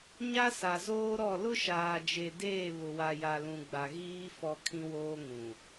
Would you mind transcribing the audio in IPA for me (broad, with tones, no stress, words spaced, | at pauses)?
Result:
ɲa˦sa˨zoː˦ɾɔ˦˨ lʊ˦ʃaː˨d͡ʒe˨deː˦˨ βʊ˨wa˨ja˨lũ˨ ɡ͡ba˨ɣiː˦ fɔ˦kʰĩ˦woː˦ŋũ˨